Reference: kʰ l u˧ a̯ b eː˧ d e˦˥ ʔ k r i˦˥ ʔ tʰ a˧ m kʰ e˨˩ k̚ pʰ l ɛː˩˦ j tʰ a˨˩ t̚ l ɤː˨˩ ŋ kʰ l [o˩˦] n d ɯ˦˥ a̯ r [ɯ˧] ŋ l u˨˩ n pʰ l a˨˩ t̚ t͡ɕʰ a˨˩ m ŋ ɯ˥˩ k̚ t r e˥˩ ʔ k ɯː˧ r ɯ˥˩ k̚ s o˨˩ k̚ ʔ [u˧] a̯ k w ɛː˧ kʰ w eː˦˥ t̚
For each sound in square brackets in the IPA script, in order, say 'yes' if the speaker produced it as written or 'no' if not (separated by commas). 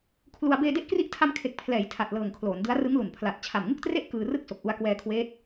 no, no, yes